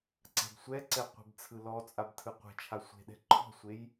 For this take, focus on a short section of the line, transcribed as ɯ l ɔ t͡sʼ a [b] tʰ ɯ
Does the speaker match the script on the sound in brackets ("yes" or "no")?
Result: yes